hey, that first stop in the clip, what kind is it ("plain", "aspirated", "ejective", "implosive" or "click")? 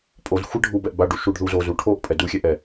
ejective